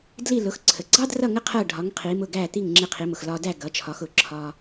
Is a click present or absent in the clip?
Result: present